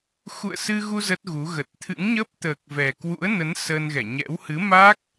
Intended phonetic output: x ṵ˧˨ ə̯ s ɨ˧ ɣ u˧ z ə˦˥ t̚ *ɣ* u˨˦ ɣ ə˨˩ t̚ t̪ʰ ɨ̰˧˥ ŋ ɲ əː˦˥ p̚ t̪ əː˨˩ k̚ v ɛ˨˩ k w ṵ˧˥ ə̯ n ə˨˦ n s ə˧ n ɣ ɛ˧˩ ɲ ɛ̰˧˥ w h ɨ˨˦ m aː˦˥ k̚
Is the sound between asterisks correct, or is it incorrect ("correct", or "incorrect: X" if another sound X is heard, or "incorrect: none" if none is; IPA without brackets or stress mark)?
correct